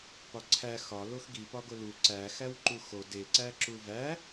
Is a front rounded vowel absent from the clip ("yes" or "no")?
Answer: yes